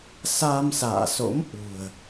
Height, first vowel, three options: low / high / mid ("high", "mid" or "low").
low